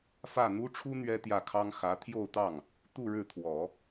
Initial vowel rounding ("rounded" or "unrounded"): unrounded